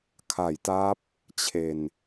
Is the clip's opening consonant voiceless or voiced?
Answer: voiceless